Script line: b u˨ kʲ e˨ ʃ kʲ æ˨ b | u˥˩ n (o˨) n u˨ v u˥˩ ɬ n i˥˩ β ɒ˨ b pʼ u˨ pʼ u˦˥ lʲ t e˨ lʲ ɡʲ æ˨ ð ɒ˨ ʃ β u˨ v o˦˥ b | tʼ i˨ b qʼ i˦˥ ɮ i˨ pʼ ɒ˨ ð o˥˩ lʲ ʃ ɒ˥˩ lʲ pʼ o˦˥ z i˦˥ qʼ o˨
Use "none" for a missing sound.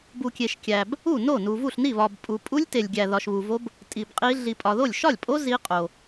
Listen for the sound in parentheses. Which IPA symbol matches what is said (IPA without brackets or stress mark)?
o˥˩